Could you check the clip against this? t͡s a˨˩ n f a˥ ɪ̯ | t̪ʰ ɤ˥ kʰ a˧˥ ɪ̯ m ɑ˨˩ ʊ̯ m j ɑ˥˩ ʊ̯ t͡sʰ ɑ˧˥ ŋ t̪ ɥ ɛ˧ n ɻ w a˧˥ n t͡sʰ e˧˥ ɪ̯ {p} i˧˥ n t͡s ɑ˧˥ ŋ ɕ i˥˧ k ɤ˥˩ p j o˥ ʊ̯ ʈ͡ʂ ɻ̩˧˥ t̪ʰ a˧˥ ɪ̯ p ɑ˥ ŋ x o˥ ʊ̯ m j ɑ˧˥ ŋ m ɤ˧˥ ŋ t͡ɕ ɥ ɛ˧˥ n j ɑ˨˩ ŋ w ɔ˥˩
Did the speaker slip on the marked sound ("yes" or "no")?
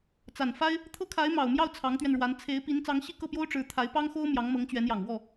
no